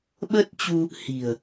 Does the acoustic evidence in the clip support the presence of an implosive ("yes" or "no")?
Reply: yes